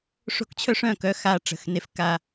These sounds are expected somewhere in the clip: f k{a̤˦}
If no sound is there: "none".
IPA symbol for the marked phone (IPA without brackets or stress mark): a˦